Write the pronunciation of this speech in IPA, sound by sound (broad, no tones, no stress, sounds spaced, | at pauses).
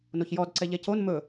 n o ç j ɔ d ǀ ɛ ʎ ɛ c o n m ɵ